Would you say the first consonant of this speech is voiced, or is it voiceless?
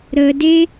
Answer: voiced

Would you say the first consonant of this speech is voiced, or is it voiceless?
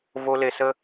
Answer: voiced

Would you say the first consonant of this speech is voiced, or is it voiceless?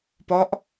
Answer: voiceless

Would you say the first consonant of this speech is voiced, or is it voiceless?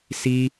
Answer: voiceless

